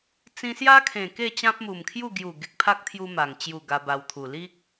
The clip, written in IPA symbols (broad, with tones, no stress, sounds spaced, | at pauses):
t͡s ĩ˧ s j a˦ kʰ ẽ˨˩ k e˥˧ t͡ɕ ã˦ p̚ m u˨˩ m kʰ j u˥˧ ɡ j u˨˩ ɡ e˨ k̚ pʰ a˦ k̚ t̪ʰ j u˧ m a˨˩ ŋ t͡ɕ j u˨˩ ɡ a˧ b a˧ w t̪ʰ u˨˩ l i˦ k̚